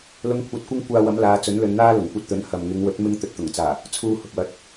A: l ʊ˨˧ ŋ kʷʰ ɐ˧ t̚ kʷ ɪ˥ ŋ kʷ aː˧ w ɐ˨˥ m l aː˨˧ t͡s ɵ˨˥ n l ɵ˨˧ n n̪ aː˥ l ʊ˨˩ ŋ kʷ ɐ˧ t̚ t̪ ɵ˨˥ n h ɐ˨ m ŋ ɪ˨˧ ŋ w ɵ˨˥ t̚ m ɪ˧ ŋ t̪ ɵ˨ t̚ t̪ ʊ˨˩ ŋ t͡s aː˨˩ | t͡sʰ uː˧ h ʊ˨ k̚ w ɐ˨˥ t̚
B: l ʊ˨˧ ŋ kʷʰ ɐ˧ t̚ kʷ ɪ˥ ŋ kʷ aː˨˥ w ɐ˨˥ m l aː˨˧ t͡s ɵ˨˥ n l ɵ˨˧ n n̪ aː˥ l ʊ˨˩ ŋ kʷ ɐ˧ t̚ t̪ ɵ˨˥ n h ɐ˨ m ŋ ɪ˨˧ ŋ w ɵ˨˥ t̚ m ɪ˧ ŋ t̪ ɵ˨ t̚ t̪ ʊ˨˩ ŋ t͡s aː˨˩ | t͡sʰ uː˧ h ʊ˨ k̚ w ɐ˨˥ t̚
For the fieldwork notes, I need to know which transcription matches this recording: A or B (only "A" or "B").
A